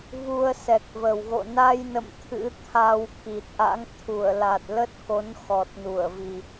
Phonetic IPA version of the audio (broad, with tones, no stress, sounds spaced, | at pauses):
v u˧ ə̯ s ɛ˨˩ k̚ v ə˨˩ w ɣ o̰˧˨ n a˧ j n ə̰˧˨ m t̪ʰ ɨ̰˧˥ t̪ʰ a˧ w k i˨˩ t̚ ʔ a̰˧˥ ŋ t̪ʰ u˧˩ ə̯ l a˨˩ t̚ l ə˦˥ t̚ k o˨˦ n x ɔ˨˩ t̚ n u˧˩ ə̯ v i˨˩